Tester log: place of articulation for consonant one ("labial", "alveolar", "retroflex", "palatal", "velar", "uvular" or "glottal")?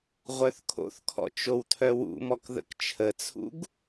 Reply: uvular